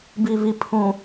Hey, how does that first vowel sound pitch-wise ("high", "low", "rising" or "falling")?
low